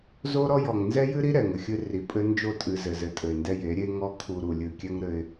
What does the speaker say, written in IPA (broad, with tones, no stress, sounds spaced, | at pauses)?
z o˦ ɾ ɔ˦ j ɔ˨ ŋ n z ɛ˦ j ɨ˦ ɾ i˦ ɾ ɛ˨ ŋ ɘ˨ xʲ ɨ˦ r i˨ pʼ ɘ˦ n d͡ʒ o˦˨ tʼ ɨ˨ z ɘ˨ z ɘ˨ tʼ ɘ˨ ɪ̯ n d ɛ˦ j e˨˦ ɾʲ e˦ ŋ ɔ˦ kʰ u˨ ɾ u˨ lʲ ɨ˨ kʲ ɛ˦ ŋ ɾ ɘ˦ ɪ̯